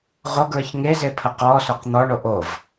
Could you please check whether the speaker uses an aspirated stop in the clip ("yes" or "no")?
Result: yes